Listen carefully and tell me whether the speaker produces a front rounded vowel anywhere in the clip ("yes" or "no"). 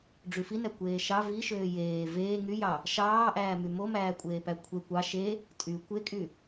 yes